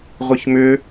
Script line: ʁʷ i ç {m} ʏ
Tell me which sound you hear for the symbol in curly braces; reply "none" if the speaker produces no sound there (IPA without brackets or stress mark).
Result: m